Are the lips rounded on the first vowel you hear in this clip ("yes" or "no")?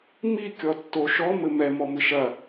no